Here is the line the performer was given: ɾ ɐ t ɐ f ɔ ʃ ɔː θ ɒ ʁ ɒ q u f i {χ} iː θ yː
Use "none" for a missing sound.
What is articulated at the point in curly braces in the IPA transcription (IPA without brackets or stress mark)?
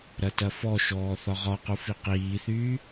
q